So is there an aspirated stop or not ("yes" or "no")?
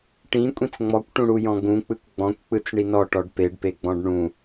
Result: no